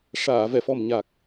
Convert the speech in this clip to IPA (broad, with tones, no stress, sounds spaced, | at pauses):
ʂ aː˨˩˨ v ɛ˨˩˨ f ɔ˨˩ m ɲ a˨˩ k̚